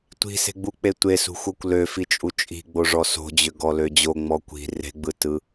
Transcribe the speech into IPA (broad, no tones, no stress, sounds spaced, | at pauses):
tʷ i̤ s e̤ ɡ͡b u k͡p e tʷ e s ṳ xʷ ɤ kʷ l ø f i t͡ʃʼ u t͡ʃʼ i̤ ɡ͡b o ʐ ɔ s o̤ d͡ʑ ʏ ɡ ɔ l ø d͡ʑ o ŋ͡m ɔ kʷ i̤ r e̤ ɡ͡b ɯ t ɯ